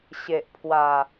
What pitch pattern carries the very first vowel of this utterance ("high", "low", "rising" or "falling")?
low